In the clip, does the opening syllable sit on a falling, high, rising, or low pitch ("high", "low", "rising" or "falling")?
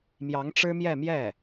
rising